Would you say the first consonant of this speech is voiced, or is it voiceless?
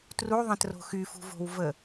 voiceless